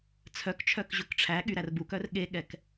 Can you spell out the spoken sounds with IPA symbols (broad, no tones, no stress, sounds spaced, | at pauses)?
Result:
t͡sʰ œ k t͡ʃʰ œ k ʑ ɵ k ʈ͡ʂʰ æ ɠ y ɾ æ r b u k œ r ɠ e ɠ ɛ k